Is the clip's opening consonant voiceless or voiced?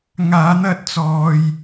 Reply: voiced